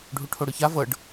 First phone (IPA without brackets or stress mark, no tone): ɖʱ